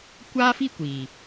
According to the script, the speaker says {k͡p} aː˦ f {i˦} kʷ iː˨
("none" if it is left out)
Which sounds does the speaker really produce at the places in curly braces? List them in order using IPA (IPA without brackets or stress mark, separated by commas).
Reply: kʷ, i˦